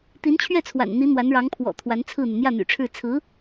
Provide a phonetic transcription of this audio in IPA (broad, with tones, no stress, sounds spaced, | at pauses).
t̪ i˧˥ n t͡ɕʰ ɥ ɛ˥˩ t͡sʰ w a̰˨˩ n n̪ i˧˥ n̪ w a˧˥ n ɻ ɑ˧˥ ŋ pʰ w ɔ̰˨˩ t̪ʰ w a˧˥ n t͡sʰ ɹ̩˥˩ n̪ y˩ n̪ j ä˥˩ n̪ y̰˨˩ ʈ͡ʂʰ ɻ̩˥˩ t͡sʰ ɹ̩˧˥